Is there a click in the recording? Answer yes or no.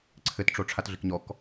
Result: yes